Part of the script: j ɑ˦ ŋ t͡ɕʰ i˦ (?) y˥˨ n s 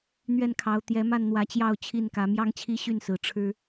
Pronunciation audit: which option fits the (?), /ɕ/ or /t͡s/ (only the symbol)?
ɕ